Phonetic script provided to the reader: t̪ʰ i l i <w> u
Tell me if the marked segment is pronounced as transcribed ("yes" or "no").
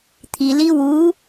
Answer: yes